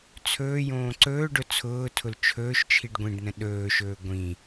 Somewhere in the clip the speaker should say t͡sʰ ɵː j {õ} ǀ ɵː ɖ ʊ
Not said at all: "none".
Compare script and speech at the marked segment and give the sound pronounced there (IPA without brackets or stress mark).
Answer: õː